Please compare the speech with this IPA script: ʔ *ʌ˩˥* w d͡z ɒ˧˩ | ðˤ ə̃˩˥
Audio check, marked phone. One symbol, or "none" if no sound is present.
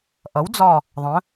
ʌ˩˥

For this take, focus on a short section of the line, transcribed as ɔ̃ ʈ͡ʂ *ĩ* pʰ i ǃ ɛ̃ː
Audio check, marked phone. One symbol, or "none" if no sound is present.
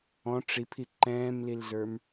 i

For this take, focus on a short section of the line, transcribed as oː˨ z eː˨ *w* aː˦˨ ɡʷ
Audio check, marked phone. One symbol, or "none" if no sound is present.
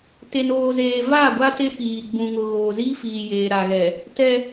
v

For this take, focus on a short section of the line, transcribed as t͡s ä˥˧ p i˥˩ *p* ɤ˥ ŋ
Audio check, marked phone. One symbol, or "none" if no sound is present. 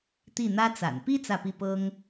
p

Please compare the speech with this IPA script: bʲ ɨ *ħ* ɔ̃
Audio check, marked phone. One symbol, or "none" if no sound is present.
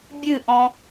ʔ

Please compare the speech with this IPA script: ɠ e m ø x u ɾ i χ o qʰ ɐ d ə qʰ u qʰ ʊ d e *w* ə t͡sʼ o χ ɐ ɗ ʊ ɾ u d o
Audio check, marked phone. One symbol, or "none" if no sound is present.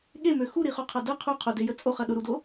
j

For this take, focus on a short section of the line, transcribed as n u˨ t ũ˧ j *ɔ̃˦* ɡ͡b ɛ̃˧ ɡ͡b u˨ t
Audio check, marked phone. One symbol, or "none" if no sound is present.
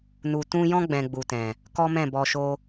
ɔ̃˦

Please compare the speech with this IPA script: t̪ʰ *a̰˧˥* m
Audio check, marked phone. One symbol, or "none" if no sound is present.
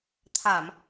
a˧˩˨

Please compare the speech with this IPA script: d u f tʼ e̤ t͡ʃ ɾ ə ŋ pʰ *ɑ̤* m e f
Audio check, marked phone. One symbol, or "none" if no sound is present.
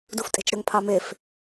ɑ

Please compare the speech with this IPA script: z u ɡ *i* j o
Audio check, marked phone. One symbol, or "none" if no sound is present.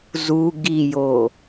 i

